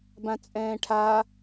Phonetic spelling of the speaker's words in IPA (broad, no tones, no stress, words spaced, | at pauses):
bãt͡sʼɛ̃ːʈʰa